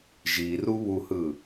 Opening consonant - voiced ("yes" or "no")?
yes